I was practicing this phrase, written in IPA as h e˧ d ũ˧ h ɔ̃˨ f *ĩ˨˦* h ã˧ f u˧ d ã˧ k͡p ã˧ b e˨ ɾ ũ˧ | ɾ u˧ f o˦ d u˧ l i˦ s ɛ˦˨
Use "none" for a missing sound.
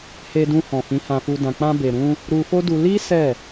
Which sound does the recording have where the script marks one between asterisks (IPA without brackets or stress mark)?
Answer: ĩ˨˦